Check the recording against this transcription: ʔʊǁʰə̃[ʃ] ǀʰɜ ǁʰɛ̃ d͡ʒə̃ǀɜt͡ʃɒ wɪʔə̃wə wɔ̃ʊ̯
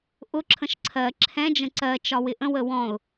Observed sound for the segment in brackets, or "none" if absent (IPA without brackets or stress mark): ʃ